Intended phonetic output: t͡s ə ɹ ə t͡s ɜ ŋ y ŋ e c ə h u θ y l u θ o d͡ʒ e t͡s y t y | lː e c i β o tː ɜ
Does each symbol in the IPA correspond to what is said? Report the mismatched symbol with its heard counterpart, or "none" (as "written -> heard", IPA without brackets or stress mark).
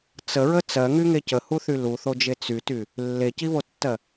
none